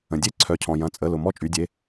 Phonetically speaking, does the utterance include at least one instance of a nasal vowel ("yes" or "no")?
yes